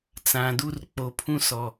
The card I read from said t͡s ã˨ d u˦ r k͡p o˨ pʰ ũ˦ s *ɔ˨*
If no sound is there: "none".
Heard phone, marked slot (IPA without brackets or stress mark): ɔ˨